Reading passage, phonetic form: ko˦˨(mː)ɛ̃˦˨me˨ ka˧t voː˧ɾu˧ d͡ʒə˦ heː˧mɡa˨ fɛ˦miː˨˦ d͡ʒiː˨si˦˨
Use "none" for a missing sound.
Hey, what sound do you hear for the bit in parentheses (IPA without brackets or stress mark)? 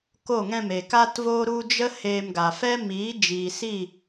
ŋ